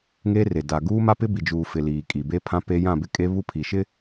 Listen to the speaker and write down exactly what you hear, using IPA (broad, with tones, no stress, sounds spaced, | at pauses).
ŋ e˦ r e˨ d a˨ ɡ uː˦ m a˦ p ɪ˦ b i˨ d͡ʒ uː˨ f ɪ˨ l iː˨ kʼ i˨ b e˦ pʰ ã˦ p e˦ j ã˦˨ b ɪ˦ kʼ e˦ β u˦ pʰ i˨ ʃ ɪ˦